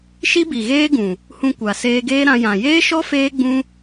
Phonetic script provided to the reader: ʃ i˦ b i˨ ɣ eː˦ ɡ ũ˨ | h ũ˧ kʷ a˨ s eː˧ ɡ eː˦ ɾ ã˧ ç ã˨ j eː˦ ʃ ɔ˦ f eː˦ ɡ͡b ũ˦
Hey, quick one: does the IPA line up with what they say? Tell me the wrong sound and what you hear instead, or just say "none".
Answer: ç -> j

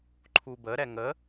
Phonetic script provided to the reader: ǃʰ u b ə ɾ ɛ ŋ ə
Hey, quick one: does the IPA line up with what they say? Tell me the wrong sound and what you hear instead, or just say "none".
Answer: none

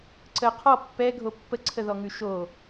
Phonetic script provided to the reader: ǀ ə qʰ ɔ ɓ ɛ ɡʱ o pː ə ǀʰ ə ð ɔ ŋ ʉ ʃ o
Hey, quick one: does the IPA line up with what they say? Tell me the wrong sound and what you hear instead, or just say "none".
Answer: ɓ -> pː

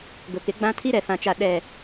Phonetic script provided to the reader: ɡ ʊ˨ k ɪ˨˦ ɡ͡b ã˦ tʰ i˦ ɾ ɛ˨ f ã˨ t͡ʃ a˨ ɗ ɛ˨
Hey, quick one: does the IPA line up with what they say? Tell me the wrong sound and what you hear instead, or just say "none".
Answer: none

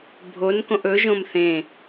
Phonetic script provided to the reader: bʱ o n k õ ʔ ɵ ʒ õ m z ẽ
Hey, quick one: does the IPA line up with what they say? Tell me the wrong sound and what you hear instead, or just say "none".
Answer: z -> θ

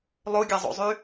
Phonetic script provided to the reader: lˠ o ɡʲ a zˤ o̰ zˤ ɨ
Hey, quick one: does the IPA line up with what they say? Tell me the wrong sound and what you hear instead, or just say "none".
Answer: ɨ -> y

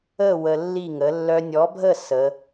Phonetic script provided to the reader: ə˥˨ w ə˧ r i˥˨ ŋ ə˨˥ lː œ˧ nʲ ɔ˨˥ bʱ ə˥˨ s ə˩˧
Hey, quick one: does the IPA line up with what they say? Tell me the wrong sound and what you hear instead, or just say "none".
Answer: r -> lː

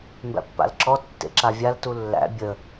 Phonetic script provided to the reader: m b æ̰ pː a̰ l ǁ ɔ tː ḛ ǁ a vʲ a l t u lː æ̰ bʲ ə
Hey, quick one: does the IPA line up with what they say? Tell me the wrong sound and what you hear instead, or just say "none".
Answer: none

